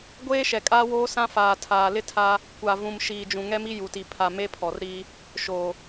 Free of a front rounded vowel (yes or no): yes